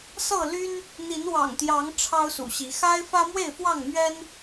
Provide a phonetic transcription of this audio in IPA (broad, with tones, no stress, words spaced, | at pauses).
sɤ˥˨ly˦n | n̪i˨˦nwɑ̰˨˩ŋt̪jɑ˨˦ŋ ʈ͡ʂʰɑ˦ʊ̯sṵ˨˩ɕi˨˦ xa˦ɪ̯fä˦mwe˥˨ɪ̯fwɑ˥˨ŋ mɥɛ˦n